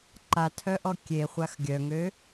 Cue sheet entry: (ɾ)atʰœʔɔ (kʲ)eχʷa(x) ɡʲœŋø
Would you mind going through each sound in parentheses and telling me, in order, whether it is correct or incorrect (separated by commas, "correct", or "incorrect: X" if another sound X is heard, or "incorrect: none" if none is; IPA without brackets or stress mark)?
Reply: incorrect: ǃ, correct, correct